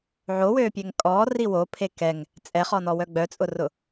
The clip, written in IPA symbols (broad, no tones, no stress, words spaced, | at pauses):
ʕowøːpʲɛŋ kʼɔːri wopʰe kɛŋ | t͡sʼɛχɔnɔwœ ɡ͡bœt͡sʼʊrʊ